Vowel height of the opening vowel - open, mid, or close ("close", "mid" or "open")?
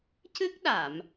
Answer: close